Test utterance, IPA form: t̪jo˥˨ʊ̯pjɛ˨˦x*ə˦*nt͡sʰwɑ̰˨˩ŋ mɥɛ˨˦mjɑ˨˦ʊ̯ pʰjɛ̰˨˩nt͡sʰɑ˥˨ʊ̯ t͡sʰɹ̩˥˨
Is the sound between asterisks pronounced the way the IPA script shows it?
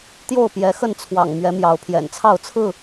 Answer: no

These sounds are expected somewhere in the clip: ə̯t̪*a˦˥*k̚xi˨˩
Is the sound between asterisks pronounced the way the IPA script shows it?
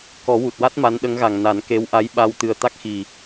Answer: yes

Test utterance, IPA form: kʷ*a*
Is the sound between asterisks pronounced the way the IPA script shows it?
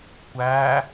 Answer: no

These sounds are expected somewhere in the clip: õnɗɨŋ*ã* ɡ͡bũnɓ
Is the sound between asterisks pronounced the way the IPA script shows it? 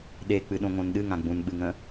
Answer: yes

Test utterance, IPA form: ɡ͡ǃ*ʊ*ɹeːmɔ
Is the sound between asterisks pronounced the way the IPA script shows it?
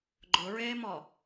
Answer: yes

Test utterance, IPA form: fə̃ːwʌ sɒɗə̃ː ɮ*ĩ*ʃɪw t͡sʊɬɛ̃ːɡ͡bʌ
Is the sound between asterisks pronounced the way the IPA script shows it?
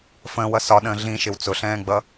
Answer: yes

